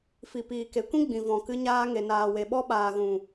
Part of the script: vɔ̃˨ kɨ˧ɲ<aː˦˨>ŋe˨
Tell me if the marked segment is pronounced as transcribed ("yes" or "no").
no